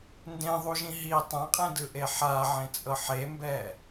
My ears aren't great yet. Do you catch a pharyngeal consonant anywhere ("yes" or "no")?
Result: yes